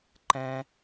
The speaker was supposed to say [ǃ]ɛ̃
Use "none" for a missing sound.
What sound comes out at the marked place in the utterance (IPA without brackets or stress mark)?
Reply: ǃ